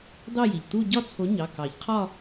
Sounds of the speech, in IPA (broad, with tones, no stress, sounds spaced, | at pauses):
d ɑ˥˧ j i˩ ʎ t̪ u˥˧ ɟ ɒ˥˧ t͡sʰ o˨˥ ɲ ɑ˩˧˩ k ɑ˨˩˦ ʎ qʰ ɒ˥˧